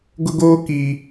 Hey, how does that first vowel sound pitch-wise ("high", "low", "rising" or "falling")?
high